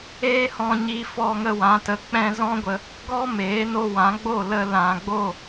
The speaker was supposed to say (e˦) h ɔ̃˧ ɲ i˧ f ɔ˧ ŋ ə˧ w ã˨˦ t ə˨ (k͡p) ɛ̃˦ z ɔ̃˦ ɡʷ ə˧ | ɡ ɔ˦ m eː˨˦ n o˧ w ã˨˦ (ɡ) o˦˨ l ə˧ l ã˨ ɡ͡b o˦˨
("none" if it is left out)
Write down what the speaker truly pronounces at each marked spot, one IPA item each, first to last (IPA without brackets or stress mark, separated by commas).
eː˦, k͡p, ɡ͡b